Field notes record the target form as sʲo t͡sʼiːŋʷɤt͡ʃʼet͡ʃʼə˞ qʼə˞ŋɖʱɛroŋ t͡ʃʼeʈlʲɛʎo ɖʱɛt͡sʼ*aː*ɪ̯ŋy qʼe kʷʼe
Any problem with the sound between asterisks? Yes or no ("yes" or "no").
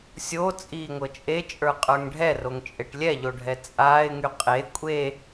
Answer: no